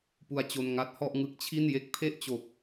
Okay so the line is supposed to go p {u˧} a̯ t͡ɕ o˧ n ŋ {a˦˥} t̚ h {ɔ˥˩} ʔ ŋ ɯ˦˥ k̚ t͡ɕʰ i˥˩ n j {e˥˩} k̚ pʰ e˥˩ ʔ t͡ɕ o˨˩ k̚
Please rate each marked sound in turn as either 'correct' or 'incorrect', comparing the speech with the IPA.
correct, correct, correct, correct

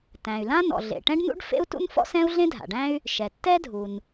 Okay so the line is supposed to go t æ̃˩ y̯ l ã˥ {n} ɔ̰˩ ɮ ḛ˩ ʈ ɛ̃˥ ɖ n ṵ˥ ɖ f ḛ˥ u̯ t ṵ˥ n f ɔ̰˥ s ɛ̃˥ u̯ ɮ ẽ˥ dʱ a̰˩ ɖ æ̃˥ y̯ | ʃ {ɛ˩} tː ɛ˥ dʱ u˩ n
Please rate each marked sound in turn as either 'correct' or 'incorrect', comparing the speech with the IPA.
correct, correct

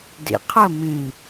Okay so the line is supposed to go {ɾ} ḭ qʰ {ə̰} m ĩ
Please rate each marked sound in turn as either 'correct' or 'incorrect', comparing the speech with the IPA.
incorrect: d, incorrect: ə

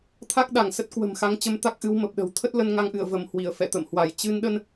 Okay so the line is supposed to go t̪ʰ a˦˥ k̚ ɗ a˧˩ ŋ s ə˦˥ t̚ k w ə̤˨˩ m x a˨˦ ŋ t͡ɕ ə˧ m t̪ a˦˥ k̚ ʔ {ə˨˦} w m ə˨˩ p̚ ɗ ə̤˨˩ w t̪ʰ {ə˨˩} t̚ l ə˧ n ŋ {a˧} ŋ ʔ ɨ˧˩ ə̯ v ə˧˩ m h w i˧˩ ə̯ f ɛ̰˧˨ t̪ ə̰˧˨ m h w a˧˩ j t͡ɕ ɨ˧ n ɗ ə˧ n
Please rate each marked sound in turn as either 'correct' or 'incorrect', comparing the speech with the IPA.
incorrect: ɨ˨˦, incorrect: ə˦˥, correct

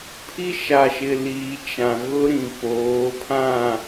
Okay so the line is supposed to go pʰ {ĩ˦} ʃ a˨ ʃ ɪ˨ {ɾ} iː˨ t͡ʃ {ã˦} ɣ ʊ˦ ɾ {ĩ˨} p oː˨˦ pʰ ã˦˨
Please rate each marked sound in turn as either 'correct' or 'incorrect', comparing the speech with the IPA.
incorrect: i˦, incorrect: l, incorrect: ã˨, correct

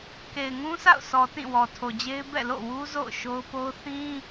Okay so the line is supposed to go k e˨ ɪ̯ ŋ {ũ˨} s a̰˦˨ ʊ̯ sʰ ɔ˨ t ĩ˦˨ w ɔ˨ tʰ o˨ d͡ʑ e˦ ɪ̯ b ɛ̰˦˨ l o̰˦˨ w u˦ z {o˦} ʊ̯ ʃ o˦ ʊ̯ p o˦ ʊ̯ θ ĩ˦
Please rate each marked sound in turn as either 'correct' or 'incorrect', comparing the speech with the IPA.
incorrect: ũ˦, incorrect: o̰˦˨

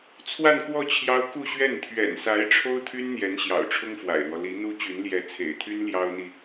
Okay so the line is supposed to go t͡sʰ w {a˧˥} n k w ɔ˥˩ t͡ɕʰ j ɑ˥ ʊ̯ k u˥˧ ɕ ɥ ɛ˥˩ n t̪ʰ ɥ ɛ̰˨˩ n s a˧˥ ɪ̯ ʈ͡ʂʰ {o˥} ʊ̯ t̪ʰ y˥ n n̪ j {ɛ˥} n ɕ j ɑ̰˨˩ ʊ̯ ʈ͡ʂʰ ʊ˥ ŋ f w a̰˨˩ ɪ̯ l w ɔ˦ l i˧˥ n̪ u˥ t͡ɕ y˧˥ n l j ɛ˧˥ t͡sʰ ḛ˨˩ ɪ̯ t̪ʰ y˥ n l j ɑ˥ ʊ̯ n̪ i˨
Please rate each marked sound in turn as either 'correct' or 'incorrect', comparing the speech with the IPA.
incorrect: a˥˧, correct, incorrect: ɛ˧˥

